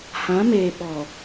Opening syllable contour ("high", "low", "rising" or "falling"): rising